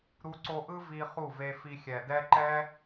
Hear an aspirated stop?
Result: no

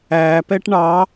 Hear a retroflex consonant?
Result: yes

